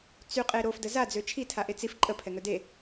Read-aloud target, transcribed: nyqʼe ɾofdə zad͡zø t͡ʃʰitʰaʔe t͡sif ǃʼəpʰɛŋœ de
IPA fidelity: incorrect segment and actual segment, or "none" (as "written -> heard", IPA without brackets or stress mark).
n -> t͡s